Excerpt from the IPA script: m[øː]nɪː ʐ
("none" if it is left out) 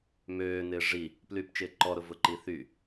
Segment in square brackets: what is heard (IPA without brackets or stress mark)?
øː